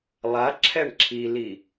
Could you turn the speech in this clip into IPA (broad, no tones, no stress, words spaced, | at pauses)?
lˠa ǁʰɛɳǁʰili